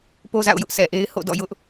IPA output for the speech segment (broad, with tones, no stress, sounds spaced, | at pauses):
p o˦ z a̰˦˨ ʊ̯ j ʊ˦ ʔ s ɛ˨ ʔ e˦ ɪ̯ h o̰˦˨ d ɔ̰˦˨ j ʊ˦ ʔ